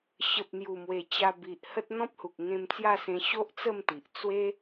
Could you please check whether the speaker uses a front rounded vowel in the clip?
no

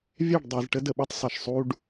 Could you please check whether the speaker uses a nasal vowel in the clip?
no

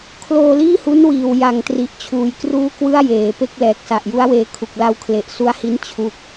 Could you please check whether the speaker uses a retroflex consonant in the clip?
no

